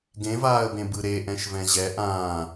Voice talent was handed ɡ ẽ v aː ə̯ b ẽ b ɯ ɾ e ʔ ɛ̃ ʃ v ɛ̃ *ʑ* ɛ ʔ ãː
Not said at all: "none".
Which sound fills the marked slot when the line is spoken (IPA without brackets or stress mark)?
ʑ